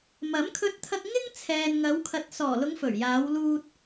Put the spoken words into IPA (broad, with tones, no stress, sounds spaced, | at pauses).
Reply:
m ɐ˨˥ m kʰ ɵ˧ t̚ t̪ʰ ɐ˧ k̚ ŋ ɪ˥ ŋ t͡sʰ ɛː˨ n ŋ ɐ˨˧ w kʰ ɐ˨ t̚ s ɔː˨˩ l ʊ˨˧ ŋ f ɵ˨˩ ɥ j aː˨˧ w l uː˧ t̚